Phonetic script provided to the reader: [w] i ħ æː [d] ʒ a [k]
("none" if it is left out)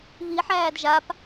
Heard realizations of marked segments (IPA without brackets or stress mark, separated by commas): β, d, p